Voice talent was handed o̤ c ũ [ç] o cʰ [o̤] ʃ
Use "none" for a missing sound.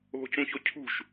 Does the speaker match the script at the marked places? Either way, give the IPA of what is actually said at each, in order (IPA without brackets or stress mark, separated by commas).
ç, ṳ